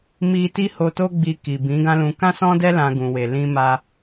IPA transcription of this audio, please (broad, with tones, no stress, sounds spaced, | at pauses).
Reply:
m i˦ t i˦ h o˧ t o˦ ɡ͡b i˧ k i˨ b ĩ˨˦ ɡ ã˦ l ũ˧ k ã˦ s ɔ̃˦ d ɛ˦ l ã˧ ɡ ũ˨ w e˨ l ĩ˧ m a˧